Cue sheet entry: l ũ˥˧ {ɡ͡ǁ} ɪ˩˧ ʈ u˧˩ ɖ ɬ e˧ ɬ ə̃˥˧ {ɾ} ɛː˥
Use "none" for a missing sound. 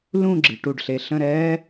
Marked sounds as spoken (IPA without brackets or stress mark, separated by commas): ɡ͡ǁ, ɾ